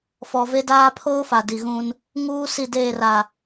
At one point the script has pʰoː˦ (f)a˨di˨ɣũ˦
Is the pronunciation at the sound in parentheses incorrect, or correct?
correct